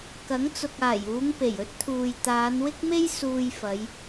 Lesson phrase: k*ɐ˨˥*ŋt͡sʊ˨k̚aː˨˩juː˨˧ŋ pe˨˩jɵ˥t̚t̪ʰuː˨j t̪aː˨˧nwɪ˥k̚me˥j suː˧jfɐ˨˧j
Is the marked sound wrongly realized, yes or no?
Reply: no